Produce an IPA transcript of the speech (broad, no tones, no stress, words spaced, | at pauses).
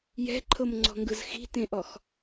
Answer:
jɛ̤ǃʰɤmŋ͡ǀɔ̤ŋɡɯz xi̤tẽʔɔx